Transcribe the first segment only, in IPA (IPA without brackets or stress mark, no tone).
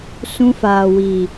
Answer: s